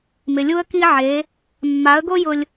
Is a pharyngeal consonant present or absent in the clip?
present